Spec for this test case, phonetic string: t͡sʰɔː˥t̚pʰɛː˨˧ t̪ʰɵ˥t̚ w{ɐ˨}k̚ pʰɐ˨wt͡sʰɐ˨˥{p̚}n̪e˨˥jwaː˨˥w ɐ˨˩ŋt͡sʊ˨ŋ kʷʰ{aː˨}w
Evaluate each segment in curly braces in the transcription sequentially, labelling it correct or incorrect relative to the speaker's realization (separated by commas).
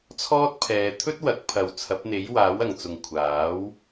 incorrect, correct, incorrect